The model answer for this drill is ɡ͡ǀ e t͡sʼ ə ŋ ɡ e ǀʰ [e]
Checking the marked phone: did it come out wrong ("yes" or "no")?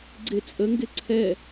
yes